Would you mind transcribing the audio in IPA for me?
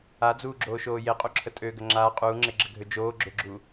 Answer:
a d͡z uː ɡ͡ǁ oː ʃ oː j e qʼ u ǁʰ ə tʼ ø ɡ ə ŋ͡ǁ aː qʼ uː ŋ͡ǁ e ɡ͡ǁ ə ɡʱ ø d͡ʒ oː ɡ͡ǁ ø ɡ͡ǁ u

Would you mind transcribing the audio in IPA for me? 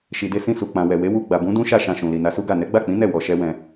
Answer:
ʃ i˨ d e˧ s ĩ˧ s u˨ k͡p ã˨ w ɛ˨ w e˨˦ w u˧ ɡ͡b a˨ b ũ˨˦ d ũ˦ ʃ a˦˨ ʃ ã˧ ʃ ũ˨ l i˨ n a˧ s u˦ ɡ a˦˨ n ɛ˨˦ ɡ͡b a˦˨ k͡p ĩ˨˦ n ɛ˦˨ w ɔ˧ ʃ ɛ˦ w ɛ̃˧

